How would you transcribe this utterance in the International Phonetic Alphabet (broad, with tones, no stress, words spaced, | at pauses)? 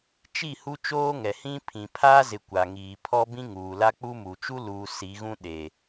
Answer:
t͡ʃi˦˨ hu˦t͡ʃoː˦ ŋɛ˨hĩ˦ pʰĩ˨pʰaː˦zɪ˨ kʷa˨ŋiː˨ pʰɔ˦bĩ˦ŋuː˨ la˦k͡pu˦mu˨ t͡ʃu˦luː˨ si˨˦ɣũ˦ɗe˨